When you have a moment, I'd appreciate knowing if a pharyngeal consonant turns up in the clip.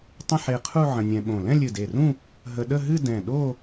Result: yes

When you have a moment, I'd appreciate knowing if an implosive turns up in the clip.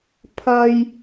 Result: no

